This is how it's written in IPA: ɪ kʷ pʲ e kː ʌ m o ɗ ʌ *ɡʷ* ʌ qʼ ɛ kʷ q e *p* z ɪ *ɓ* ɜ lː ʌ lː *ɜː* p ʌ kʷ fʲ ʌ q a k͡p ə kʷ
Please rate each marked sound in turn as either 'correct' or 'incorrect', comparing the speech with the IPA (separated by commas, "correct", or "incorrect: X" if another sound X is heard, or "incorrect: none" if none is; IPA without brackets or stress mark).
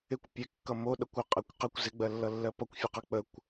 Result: incorrect: kʷ, incorrect: kʷ, incorrect: ɡ͡b, incorrect: ɜ